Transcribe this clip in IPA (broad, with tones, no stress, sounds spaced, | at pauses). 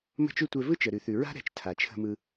m ə̤˦ t͡ʃ ʉ˦ tʷ ɛ˧ v ɯ˦ t͡ʃ ə˨ ɾ ʉ˨ θ ʉ˨ ɹ a̤˦ ɾ ɛ̤˨˦ t͡ʃ tʰ a˨ t͡ʃʰ ə̤˧ m ɯ˧